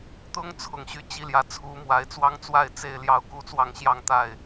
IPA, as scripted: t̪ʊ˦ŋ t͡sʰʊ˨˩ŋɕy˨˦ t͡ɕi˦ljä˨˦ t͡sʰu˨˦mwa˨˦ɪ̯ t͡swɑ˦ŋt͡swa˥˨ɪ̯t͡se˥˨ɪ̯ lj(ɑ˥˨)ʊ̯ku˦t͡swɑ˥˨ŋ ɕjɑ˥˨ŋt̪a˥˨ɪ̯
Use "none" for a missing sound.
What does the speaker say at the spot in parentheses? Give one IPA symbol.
ɑ˥˨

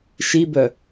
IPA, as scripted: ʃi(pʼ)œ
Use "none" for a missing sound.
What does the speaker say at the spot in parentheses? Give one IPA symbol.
b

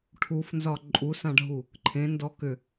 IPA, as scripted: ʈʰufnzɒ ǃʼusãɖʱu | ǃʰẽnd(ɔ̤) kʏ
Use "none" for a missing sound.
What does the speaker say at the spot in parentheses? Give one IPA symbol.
ɔ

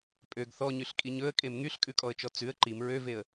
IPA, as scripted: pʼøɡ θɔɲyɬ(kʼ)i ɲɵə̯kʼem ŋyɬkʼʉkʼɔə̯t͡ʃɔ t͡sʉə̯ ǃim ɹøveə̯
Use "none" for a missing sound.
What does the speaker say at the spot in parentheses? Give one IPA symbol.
kʼ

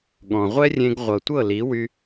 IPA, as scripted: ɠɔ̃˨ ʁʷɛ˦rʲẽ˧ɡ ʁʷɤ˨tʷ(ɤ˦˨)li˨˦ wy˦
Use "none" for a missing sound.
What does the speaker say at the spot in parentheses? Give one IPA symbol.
ɤ˦˨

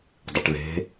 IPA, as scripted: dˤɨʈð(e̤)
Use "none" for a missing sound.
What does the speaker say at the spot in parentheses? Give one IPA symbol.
e̤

